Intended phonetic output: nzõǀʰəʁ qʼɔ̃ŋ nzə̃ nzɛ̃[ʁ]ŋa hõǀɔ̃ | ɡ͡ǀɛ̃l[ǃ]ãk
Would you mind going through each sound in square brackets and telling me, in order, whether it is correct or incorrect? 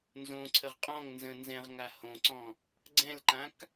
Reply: correct, correct

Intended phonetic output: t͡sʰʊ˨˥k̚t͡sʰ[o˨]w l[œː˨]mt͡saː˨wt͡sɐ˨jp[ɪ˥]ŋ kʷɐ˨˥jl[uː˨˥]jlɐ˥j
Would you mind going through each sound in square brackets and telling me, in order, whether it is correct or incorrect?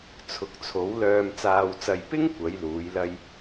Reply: incorrect: o˨˥, correct, correct, correct

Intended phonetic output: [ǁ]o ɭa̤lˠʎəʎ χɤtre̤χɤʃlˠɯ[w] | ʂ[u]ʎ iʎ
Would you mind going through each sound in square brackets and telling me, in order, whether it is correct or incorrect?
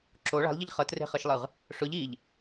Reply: correct, incorrect: ʁ, incorrect: ʊ

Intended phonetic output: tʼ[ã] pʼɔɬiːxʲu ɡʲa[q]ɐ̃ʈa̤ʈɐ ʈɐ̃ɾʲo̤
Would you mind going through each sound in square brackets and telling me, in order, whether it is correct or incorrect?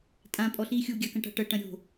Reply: correct, incorrect: k

